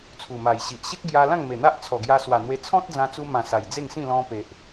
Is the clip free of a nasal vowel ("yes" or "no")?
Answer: no